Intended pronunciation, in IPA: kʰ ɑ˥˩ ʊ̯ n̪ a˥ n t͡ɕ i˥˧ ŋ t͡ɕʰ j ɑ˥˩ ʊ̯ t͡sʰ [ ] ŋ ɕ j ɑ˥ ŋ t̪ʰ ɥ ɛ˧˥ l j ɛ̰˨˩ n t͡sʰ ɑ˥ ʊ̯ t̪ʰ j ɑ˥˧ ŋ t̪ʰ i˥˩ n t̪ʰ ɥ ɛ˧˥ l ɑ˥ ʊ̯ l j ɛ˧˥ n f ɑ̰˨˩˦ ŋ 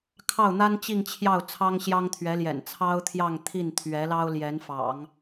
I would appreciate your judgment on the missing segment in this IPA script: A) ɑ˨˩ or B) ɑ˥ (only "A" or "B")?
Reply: B